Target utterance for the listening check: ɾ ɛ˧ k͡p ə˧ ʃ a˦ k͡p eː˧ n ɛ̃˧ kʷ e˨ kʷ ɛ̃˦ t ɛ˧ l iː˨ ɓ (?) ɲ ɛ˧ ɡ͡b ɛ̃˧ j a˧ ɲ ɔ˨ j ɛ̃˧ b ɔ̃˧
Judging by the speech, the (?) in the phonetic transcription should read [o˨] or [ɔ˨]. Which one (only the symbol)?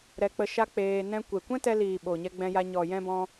o˨